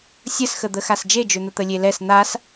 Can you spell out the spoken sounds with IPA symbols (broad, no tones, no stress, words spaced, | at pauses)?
sʲəsxəd̪əxas d͡ʒed͡ʒøn̪ə t̪əlʲelɛs n̪as